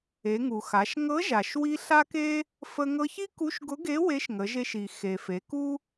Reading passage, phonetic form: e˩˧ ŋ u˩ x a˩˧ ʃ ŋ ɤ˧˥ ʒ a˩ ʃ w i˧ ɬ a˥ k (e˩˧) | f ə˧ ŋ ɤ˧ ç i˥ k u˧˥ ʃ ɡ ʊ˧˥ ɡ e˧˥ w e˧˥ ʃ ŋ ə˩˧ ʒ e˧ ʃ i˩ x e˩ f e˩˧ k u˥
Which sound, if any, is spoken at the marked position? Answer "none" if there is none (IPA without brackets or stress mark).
e˥